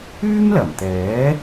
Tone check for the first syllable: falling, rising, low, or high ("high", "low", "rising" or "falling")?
high